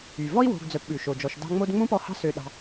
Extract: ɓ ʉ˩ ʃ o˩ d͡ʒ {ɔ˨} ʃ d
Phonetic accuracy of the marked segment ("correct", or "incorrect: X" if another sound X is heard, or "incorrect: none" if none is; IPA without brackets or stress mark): correct